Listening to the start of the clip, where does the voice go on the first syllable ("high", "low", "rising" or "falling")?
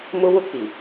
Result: high